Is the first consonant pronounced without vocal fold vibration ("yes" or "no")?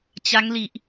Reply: yes